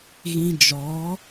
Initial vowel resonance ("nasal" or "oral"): nasal